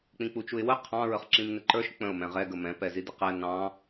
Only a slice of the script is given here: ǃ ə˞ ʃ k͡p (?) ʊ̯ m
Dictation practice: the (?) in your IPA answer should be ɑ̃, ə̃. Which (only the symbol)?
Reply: ə̃